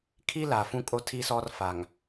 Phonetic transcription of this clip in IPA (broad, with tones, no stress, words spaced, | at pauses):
kʰi˦la˨ fũ˦kʼo˦ tʰi˦sɔ˦rfa˨ŋ